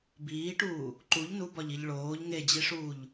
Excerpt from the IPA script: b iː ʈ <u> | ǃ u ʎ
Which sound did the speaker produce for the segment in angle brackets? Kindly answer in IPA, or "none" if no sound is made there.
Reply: uː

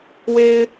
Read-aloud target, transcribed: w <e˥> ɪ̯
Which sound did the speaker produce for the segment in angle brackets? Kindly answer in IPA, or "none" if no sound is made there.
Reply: e˥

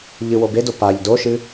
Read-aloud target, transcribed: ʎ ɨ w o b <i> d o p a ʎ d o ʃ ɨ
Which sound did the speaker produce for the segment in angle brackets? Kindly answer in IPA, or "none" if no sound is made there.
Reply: e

